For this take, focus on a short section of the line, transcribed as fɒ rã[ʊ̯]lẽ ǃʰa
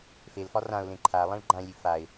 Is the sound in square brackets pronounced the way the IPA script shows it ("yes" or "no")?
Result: yes